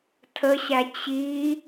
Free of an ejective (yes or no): yes